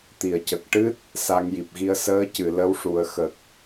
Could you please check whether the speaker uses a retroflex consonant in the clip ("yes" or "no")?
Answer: yes